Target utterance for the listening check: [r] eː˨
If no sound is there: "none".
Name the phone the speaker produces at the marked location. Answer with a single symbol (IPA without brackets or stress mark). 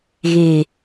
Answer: ɣ